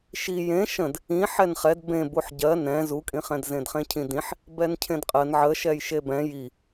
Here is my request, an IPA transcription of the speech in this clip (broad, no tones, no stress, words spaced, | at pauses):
ʃi jẽ ʃə̃d | ĩ ħɛnχɛd bẽ buħɟɜ nɛ̃ zukʼĩχɛ̃d zẽdχẽcʰĩdĩħ | bɛncʰẽdqʼɜn ʕəʃɛj ʃebɛ̃ ji